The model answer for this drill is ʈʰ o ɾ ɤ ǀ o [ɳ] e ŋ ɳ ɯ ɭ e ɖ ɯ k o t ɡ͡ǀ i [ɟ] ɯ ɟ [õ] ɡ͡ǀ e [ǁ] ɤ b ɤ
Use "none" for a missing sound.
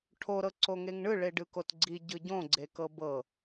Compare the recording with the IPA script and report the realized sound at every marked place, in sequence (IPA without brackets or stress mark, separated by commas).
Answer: ŋ, ɟ, õ, k